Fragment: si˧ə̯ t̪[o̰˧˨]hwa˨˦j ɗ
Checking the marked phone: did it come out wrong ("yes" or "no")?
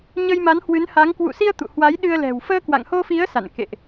yes